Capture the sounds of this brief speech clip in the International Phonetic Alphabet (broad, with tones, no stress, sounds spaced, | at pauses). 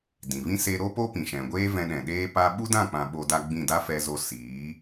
d ĩ˨ v ĩ˦ s e˧ ɾ o˦ p o˦ p ĩ˨ ʃ ɛ̃˨ ɡʷ eː˦ v ɛ̃˧ ɗ ɛ̃˨ ɗ eː˦ p a˧ ɓ u˦ d ã˦˨ k͡p ã˨ ɓ o˧ d a˦ ɡ͡b ĩ˦˨ d a˦ f ɛ˦ z o˦ s iː˨˦